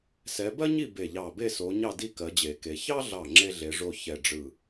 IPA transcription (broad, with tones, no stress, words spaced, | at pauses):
sɛ˨˦bɜ˥ɲi˥˨ be˧˩ʎɑ˧˩be˥˨ so˨˦ ɲɑ˥˨di˥˨ kɜ˨˦d͡ʑe˨˩˦ke˨˦ çɑ˥ɮɑ˧˩ ŋ͡ǁe˥ɮe˨˦ʐo˥˨ çɛ˥˨ɖ͡ʐɯ˥˨